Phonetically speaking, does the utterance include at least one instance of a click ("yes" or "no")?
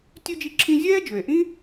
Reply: yes